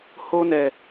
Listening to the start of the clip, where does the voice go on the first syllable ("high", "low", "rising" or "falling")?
high